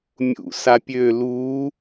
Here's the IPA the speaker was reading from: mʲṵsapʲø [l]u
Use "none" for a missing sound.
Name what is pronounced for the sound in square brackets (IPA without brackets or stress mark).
l